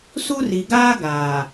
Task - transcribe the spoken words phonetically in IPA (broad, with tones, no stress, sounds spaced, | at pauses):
s u˦ r i˨ ɡ aː˦ ɡ aː˨